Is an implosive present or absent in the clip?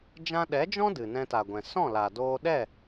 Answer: present